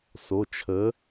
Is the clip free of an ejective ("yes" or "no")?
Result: yes